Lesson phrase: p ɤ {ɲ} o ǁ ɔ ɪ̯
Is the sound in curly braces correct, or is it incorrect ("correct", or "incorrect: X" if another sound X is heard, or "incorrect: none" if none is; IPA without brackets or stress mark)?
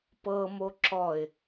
incorrect: m